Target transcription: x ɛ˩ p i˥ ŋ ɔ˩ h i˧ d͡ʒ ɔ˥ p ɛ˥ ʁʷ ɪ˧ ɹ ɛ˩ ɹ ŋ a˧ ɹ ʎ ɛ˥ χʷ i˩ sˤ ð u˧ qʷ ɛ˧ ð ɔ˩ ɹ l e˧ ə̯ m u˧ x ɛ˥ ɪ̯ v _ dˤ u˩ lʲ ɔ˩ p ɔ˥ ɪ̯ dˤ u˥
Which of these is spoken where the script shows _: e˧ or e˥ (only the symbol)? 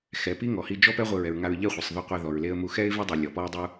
e˥